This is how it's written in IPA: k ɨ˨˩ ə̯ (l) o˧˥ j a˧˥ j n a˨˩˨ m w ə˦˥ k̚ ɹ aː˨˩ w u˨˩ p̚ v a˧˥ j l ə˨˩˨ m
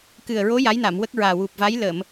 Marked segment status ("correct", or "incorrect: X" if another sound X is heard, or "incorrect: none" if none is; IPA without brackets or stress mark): incorrect: ɹ